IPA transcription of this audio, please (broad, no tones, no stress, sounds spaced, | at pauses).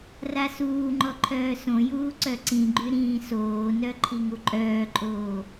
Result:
r a s uː ŋ͡ǃ ɔ ǃʰ œː s õ j uː ǀ œ ǀ ĩ ɡ͡ǃ y ɾ ĩː s oː n œ ǃʰ i ŋ u ǃʼ œː ǃʼ oː